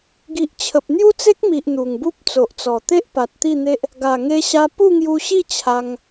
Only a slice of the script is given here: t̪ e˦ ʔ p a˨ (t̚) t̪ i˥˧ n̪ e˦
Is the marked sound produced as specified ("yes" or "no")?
yes